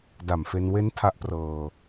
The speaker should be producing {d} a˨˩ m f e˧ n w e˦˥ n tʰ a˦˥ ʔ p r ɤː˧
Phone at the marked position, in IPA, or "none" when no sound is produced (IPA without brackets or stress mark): d